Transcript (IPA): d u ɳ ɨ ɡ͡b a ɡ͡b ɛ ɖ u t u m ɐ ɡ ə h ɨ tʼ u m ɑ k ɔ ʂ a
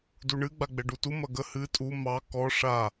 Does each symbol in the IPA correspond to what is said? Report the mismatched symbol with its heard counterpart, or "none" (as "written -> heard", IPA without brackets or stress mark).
none